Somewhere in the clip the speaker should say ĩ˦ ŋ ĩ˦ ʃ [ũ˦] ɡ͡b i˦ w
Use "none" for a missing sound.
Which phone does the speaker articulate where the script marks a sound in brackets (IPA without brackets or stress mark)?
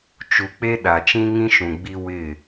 ũ˨